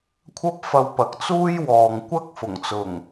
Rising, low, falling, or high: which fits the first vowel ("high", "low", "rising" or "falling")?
high